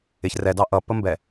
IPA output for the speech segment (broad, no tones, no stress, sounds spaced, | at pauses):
ɪ ç r ɛ d ɑ ʔ ʌ p ə m b ɛ